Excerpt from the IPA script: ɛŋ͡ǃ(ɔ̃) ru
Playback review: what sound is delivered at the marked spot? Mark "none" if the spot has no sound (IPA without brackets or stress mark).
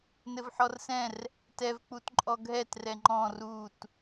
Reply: ɔ̃